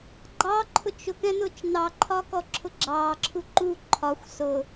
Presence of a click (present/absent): present